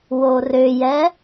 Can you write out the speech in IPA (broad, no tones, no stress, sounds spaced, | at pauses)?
w o r ʏ j ɛ